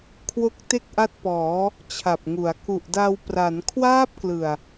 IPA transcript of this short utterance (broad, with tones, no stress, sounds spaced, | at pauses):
kʰ w o˦˥ k̚ t e˥˩ k̚ ʔ a˦˥ t̚ p ɔː˩˦ | t͡ɕʰ a˨˩ p̚ ŋ u˩˦ a̯ k u˨˩ ʔ d a˧ w p r a˩˦ n kʰ w aː˦˥ p̚ k l ɯ˨˩ a̯